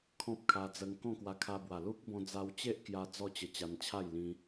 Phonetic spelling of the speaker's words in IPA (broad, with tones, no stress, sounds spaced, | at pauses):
kʰ ɔ̃˦ p̚ kʰ a˧ d͡z ə˧ ŋ k ɔ̃˥˧ k w a˧ kʰ a˧ b w a˨˩ l u˦ k̚ b ɔ̃˧ d͡z a˧ w t͡ɕ e˦ ʔ k j a˧ d͡z ɔ˥˧ t͡ɕ ə˧ t͡ɕ a˧ n t͡ɕʰ a˥˧ j l ĩ˧